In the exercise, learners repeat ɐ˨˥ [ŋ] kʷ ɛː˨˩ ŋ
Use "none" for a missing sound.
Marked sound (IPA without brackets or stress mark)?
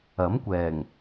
m